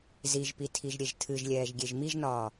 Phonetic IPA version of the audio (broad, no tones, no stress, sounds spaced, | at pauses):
z i ʒ p i tʰ i ʒ ɾʲ e ʒ tʰ ɨ ʒ lʲ ɛː ʒ ɡʲ e ʒ m i ʒ n ɒː